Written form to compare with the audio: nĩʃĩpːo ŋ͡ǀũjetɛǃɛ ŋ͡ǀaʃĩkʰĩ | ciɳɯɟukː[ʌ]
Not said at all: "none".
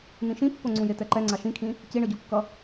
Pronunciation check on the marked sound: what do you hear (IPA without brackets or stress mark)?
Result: ʌ